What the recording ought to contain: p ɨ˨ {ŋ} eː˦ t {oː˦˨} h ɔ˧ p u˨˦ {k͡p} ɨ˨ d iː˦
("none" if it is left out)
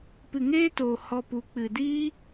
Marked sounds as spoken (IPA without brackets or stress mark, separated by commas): ŋ, oː˨, k͡p